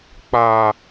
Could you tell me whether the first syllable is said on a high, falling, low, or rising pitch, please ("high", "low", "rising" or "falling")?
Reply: high